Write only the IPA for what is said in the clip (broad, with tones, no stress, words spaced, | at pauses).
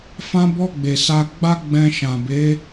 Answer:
fã˧bɔ˧ ɡ͡be˨sa˧ ɡ͡ba˦ɡ͡bɛ̃˧ʃã˨be˨˦